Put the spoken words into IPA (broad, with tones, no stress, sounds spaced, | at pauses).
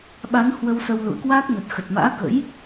ɓ a˨˦ n h w ə˧ w s ə˧ w l ṵ˧˨ ə̯ k w a˦˥ k̚ n ə˨˩ t̚ x ə˨˩ t̚ m a̰ː˧˥ k ə̰˧˥ j